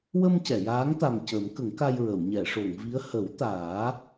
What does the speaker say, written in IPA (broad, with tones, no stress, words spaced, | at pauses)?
wə˧m cɛ˨˩˨jaː˧˥ŋt̪a˨˩m cə˨˩˦mkə˨˩˦ŋka˧jɹə˨˩˨w ɲɛ˨˩˨ʂo˨˩˨ŋvi˧˥ə̯ hə˨˩˦w t̪aː˨˩˦